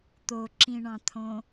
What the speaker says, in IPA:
t̪oǁĩɳɑ̃t̪ʰõ

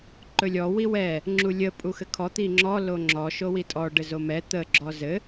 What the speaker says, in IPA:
ǃɵlʲɔ wiwɛ | ŋ͡ǁulʲə pʼuxɘkʰɔ t̪iŋ͡ǁɔ loŋ͡ǁɔ ʃowitʼɔ ɖɘzomɛ t̪ə ɡ͡ǁɔzɘ

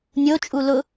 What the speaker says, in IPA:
nʲot͡ʃʼu lʊ

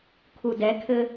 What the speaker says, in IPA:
kʰudɛkʰɘ

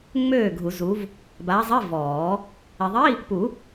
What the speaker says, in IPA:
ŋ͡møː˥˩ɡʱu˨˩˦zu˨˦v | baː˨˦zˤi˧˥˧vɔː˨˩˦ | e˨ðˤi˧˥˧ | pu˨˩˦

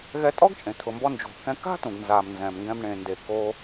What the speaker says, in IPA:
ɣɛ˧tʼɔ˥ɡt͡ʃʼẽ˩ t̪ʰʊ˩mbɔ˧nd͡ʒo̤˩ kɛ̃˧ ka̤˥tũ˩ɡnza˩m nzɛ̃˩mŋɡɛ̃˧m ɳẽ˩nde˩ ko˧

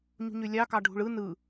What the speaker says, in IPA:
ɲṳɲølʲɑ kɑɖʱṳɭɯ nɯ

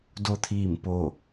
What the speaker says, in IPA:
do˧t̪ʰiː˧˩mpo˧˩

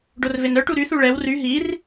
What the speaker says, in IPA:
ɖorvenœʈu ɾyθu ɭɛw ry ɦir

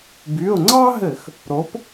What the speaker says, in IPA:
by˩˧˩ʊ̯ŋ͡ǀɑ˥ɦɘ˧˩˧x | ɾo˨˥p

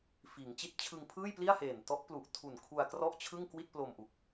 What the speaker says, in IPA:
fiː˩˦ŋt͡ɕi˦˥t̚t͡ɕʰɯ˧ŋ pʰɯː˥˩jpli˥˩a̯heː˨˩n tɔ˦˥ʔplu˨˩ʔtʰu˨˩n kʰu˧a̯krɔ˥˩ʔ t͡ɕʰɯ˥˩ŋkwi˥˩t̚plo˧mʔu˨˩k̚

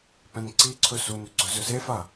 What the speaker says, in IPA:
pɛ̃nǀiǀʰɵ sunʏ ɡ͡ǀɵzɵsefa

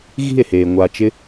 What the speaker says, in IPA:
ɣi̤˦˨e̯heː˨ ŋʷa˧ t͡ʃɪ˦

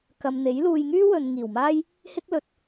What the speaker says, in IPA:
kɐ˨mn̪e˨˥j luː˨jŋyː˥ wɵ˨nŋiː˨˩wmaː˥j | hɪ˥k̚lɵ˨t̚

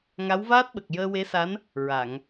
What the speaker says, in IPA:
ŋa˧˥wvaː˦˥t̚ɓə˨˩k̚ jəː˧we˧˥sa˧˥n | ɹa˨˩˨ŋ

